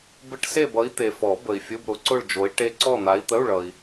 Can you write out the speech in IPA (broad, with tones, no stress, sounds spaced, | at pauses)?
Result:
b ɘ˧˥˧ ʈ s e˦˨ b ʌ˨˦ i̯ t̪ e˨ f ɔ˨˩˦ b ə˨ i̯ fʲ ʊ˧˥˧ b ɾ ʊ˨˦ ǀ ʊ˦˨ ɭ d͡ʒ o˨˦ i̯ ʈ e˦˥ ǀ ɔ˦˨ n̪ a˨˦ i̯ t̪ ə˧˥˧ u̯ ɭ ʌ˨ i̯